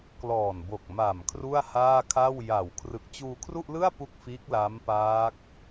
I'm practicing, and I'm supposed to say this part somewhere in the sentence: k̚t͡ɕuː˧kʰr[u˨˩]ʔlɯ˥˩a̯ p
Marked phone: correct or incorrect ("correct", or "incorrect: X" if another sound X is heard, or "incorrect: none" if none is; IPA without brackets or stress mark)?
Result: incorrect: u˥˩